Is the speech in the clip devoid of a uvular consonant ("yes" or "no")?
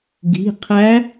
no